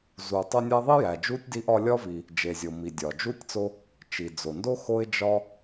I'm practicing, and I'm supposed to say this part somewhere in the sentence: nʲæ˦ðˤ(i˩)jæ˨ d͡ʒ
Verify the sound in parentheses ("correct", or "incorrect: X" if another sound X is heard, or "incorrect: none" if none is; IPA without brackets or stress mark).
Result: incorrect: i˥